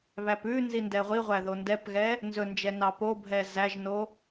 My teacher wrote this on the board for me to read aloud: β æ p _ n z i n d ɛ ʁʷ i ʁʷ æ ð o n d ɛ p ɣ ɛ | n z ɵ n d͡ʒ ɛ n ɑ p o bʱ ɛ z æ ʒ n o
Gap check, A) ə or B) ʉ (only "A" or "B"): B